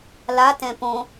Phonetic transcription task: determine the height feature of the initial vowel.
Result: low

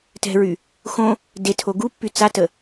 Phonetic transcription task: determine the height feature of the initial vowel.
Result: mid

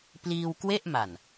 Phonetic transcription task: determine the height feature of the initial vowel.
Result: high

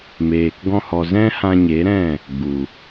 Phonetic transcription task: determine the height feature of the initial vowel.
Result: mid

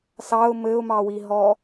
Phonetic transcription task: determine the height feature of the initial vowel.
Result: low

